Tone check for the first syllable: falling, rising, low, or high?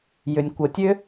low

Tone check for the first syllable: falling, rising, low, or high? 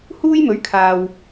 high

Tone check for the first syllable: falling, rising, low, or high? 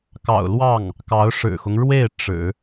low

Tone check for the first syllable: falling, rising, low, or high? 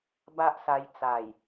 high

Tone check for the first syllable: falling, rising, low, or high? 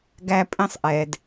high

